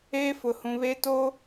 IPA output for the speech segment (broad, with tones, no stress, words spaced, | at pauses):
eː˦fʊ˨hũ˨ βe˦to˦